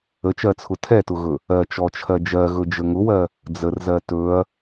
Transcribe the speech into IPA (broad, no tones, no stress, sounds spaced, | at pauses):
ə t͡ʃ ɜ t͡sʰ ʊ tʰ ɛ t ʊ ɣ ɵ | ɜ t͡ʃ ɔ t͡ʃʰ ɜ d͡ʒ ɜ ɣ ɵ d͡ʒ ə ŋ ʊ w ɜ | d͡z ə r z ɜ t ɵ ɐ̯